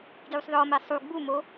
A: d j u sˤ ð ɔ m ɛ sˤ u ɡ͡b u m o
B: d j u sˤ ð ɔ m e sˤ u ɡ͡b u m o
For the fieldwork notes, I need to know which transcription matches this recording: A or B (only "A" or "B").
A